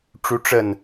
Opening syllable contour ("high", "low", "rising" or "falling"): rising